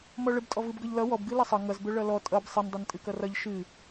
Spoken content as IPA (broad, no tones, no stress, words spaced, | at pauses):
mɔɭəbtʼɔ vɨbɡʌʎlʌ wɔb ɡɨlʌsˤʌ ŋʌzbɵ ɭʌlɔ tʼʌb sˤəndˤʌn tʼɨkʌrʌʎ ʃɨ